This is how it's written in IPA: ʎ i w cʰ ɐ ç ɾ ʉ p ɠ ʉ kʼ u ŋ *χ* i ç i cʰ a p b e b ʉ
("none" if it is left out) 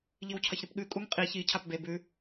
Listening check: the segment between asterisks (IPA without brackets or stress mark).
qʼ